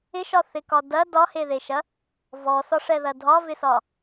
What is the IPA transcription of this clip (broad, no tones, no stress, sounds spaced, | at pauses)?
ɪ ʃ ɒ θ ɪ k ɒ d ɐ d ɒ h e ð e ʃ ɐ | v ɔ s ɒ ʂ ɛ ð ɐ dʱ ɒ v ɪ s ɒ